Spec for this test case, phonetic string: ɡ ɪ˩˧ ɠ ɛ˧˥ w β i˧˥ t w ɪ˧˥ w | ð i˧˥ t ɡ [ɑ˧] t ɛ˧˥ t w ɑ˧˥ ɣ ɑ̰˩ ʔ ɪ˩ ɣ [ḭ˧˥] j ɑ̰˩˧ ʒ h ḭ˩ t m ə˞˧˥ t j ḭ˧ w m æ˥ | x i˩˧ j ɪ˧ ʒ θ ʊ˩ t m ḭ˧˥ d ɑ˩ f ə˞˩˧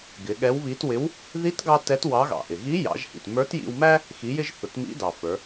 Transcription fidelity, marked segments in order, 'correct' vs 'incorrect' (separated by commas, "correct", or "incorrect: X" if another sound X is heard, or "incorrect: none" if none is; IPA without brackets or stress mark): correct, incorrect: i˧˥